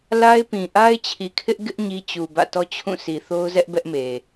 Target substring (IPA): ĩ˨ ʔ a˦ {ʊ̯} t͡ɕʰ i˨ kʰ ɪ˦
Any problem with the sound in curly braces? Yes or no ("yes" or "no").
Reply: yes